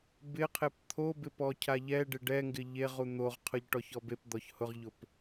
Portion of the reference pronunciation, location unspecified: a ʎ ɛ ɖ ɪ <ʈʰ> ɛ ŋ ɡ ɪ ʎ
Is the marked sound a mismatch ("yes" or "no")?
yes